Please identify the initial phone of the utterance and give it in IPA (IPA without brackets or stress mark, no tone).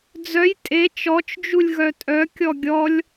d͡z